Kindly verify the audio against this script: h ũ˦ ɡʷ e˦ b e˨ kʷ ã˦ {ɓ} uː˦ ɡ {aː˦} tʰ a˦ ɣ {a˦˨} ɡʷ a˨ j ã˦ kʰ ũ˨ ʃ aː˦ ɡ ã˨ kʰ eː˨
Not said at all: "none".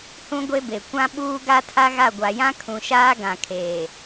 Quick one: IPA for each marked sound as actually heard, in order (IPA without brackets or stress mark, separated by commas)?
ɓ, a˦, a˦˨